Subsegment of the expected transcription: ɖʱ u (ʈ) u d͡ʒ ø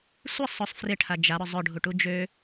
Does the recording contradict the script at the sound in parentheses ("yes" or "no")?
no